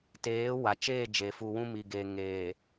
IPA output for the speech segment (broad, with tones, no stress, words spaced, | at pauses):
teː˨˦ wa˨ t͡ʃeː˦˨ d͡ʒe˨fu˨wũ˦mi˨ ɡe˨ŋeː˨